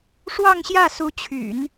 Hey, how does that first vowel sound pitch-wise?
falling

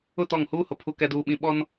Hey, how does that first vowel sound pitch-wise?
falling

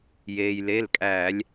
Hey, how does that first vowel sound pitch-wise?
low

